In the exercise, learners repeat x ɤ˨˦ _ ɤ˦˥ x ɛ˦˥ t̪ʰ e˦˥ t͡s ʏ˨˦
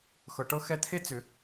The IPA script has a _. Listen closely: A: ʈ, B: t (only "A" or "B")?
A